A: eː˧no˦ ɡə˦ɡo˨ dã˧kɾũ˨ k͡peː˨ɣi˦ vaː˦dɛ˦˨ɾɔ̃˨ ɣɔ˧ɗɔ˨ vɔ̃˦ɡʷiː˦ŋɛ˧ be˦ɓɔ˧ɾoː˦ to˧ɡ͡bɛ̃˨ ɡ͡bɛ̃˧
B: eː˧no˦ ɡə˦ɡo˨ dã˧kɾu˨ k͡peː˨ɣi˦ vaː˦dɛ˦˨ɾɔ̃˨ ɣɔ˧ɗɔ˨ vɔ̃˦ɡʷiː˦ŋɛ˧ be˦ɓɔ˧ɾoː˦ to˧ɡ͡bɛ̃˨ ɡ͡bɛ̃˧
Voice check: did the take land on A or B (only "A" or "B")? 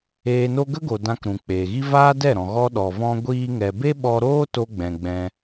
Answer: A